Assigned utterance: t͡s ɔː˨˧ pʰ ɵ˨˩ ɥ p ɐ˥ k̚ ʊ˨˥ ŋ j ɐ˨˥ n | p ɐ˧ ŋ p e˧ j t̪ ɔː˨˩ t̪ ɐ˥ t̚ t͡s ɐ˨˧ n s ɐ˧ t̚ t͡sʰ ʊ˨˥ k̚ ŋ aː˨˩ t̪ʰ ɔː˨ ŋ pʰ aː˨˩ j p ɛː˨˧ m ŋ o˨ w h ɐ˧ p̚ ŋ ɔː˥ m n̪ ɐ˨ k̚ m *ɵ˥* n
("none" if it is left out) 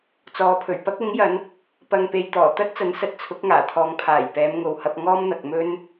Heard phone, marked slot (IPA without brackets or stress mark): ɵ˥